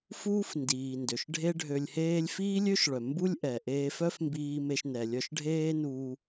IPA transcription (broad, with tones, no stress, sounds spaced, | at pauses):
f uː˥ f n d iː˩ n d ø˩ ʃ ɖʱ e˥ ɖʱ ø˧ lʲ h eː˥ lʲ f iː˥ lʲ ø˥ ʃ ɭ œ˩ m b u˥ lʲ ʔ ɛ˩ ʔ eː˧ f œ˥ f m b iː˧ m e˧ ʃ n ɛ˩ lʲ œ˧ ʃ ɖʱ eː˥ n uː˧